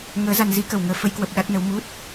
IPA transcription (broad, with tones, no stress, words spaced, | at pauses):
ŋəː˨˦za˧n zi˨˦kə˨˩w ŋəː˨˦ fə˨˦jkwə˨˩p̚ ɗa˦˥t̚nə˨˦w mu˦˥t̚